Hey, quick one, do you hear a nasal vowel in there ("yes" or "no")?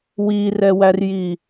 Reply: no